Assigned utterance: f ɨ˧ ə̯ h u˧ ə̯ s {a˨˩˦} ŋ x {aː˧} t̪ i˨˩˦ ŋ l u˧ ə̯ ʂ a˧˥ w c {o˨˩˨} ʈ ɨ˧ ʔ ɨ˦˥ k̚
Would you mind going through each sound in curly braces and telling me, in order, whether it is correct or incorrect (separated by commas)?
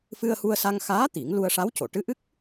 incorrect, incorrect, correct